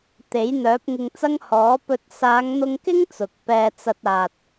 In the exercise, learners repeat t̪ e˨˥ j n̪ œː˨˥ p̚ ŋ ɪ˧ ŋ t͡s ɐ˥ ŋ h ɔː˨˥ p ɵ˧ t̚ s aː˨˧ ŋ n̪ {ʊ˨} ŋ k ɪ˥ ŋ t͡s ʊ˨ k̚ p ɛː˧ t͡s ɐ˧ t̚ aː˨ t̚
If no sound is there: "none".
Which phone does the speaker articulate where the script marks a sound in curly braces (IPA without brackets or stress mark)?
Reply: ʊ˧